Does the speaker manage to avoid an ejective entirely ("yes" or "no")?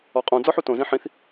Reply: no